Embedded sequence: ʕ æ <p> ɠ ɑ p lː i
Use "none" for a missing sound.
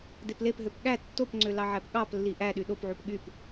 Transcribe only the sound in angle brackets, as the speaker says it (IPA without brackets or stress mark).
p